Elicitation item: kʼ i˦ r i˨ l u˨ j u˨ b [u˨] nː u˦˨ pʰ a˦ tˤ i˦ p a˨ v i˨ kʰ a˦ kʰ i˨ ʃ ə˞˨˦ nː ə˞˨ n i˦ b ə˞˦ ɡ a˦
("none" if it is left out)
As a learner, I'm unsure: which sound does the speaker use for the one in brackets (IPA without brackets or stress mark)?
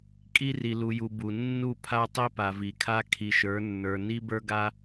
u˨